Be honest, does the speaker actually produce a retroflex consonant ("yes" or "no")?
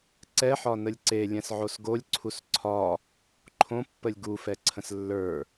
no